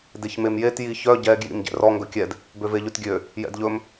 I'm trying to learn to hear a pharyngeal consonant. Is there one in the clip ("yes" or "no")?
no